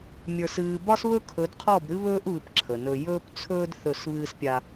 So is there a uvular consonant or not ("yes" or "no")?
yes